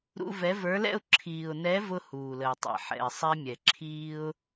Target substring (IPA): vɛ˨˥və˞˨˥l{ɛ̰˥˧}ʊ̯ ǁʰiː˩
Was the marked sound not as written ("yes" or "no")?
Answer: no